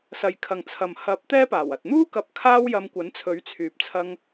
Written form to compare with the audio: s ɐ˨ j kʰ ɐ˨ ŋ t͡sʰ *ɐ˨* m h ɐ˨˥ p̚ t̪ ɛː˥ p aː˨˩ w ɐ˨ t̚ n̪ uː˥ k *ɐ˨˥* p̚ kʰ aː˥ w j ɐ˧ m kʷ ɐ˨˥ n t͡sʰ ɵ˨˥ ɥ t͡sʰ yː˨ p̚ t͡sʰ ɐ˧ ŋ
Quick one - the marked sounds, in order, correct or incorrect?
correct, correct

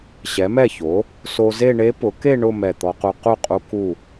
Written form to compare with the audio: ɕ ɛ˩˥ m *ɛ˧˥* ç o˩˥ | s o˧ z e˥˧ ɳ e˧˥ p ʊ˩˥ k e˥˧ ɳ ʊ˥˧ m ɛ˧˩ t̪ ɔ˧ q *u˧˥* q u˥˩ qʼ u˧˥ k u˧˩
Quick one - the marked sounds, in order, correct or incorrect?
incorrect: ɛ˥˩, incorrect: u˧

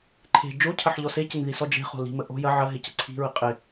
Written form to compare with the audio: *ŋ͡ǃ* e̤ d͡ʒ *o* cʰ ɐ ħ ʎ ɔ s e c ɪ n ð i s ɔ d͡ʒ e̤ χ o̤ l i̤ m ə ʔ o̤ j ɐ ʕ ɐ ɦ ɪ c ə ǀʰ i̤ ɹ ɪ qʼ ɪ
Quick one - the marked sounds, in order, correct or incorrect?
incorrect: ǃʰ, correct

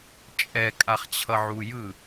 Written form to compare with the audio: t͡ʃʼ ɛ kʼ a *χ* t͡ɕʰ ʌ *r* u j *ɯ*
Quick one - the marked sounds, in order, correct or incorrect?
correct, incorrect: ʕ, correct

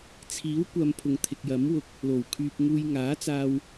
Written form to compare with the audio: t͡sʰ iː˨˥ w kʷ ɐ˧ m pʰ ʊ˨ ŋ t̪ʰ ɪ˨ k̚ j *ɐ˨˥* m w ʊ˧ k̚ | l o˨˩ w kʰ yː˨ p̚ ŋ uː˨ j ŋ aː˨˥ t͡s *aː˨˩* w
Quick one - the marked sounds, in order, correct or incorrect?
correct, incorrect: aː˧

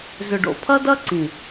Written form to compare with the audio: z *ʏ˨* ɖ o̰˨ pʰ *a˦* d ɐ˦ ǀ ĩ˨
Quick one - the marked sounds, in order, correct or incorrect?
correct, incorrect: ɐ˦

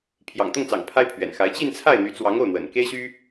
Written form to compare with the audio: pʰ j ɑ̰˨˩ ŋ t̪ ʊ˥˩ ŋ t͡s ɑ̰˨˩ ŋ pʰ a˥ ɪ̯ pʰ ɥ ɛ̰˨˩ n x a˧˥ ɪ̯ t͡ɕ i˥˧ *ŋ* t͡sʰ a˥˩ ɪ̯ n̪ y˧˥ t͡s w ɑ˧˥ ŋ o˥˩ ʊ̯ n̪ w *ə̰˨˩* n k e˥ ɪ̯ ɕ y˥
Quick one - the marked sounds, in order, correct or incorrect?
incorrect: n, correct

